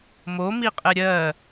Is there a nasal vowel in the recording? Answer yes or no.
no